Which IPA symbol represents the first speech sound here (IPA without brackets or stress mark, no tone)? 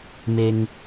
m